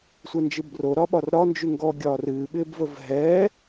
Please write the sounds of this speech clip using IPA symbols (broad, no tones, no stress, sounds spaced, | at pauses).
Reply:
sʷ ɛ n d͡ʒ ɨ b r o ɾ ɒ ɓ ɒ r ɾ ɒ n d͡ʒ y ŋ ɡ ɔ ɡʲ ɒː r ɨː ɓ ɪː b v ə v ɦ ɛː